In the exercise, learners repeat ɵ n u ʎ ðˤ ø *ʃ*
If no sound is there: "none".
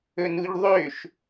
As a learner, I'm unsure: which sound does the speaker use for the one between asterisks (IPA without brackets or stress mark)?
ʃ